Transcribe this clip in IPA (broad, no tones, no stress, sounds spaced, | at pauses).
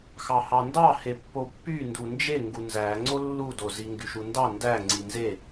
x ɑ h ɑ n d ɑ h e pː o pː y n d u n d͡ʒ e ŋ ɡ u n z æ ŋ͡ǀ o lː u d o z i ŋ ɡ y ʃ u n d ɑ n d æ ŋ͡ǀ i n z e